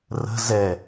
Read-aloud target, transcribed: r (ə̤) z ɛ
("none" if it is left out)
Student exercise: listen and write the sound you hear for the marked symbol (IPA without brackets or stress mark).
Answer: ə̤